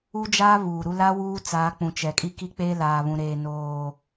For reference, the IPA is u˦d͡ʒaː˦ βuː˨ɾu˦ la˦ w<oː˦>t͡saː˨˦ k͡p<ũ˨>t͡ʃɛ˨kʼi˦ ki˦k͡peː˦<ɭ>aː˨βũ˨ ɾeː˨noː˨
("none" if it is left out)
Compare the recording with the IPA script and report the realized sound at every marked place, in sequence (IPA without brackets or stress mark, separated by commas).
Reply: uː˦, ũ˨, l